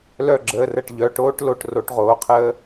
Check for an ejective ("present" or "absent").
absent